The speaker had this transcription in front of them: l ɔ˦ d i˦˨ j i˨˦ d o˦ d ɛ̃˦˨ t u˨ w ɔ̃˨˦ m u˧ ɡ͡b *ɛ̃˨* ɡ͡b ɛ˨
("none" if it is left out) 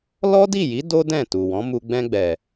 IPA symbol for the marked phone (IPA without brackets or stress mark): ɛ̃˧